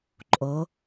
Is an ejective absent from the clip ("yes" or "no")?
no